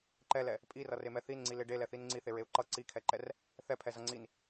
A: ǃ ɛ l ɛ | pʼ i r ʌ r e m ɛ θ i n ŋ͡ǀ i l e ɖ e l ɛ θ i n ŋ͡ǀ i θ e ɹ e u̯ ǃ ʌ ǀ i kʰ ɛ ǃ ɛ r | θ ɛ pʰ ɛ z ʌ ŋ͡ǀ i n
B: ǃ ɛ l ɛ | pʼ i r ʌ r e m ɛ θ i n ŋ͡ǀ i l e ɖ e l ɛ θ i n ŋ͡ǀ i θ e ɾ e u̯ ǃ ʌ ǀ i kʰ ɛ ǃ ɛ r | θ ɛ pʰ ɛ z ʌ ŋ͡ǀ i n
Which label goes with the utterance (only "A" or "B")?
A